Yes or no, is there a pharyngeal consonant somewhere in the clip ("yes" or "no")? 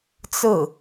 no